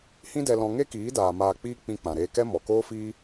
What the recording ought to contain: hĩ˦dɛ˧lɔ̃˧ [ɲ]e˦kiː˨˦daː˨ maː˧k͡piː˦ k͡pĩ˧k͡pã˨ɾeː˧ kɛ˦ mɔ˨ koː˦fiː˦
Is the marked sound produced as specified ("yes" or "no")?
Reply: no